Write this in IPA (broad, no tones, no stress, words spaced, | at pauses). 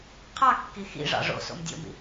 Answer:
qʰɑkːi xḭʐɑ̰ ʐo̰ so̰mdʲo̰mḭ